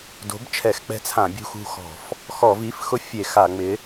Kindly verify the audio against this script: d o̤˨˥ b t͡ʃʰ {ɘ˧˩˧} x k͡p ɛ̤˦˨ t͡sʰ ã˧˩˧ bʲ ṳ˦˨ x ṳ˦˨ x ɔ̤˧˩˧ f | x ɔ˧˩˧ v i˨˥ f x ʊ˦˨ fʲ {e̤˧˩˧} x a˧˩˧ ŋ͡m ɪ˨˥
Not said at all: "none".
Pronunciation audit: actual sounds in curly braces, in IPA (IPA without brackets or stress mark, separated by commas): ɛ˧˩˧, e˧˩˧